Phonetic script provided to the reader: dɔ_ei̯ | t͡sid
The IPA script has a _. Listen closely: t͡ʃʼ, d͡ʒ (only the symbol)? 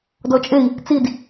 t͡ʃʼ